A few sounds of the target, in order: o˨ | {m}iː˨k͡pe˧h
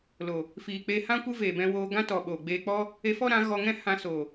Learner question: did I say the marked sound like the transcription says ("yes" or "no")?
no